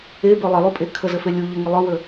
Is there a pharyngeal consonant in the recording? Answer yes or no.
no